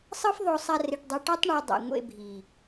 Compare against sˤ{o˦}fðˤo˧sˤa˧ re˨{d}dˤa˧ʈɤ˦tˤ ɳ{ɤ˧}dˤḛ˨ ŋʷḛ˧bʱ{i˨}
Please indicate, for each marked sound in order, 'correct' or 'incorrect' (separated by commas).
incorrect, incorrect, correct, correct